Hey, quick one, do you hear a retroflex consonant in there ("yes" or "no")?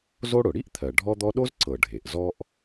yes